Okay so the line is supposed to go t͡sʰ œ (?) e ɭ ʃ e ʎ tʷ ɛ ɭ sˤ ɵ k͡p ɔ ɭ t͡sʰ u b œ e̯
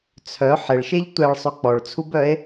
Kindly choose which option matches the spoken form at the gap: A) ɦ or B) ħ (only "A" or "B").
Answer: B